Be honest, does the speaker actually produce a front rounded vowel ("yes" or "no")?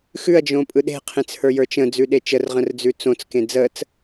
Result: no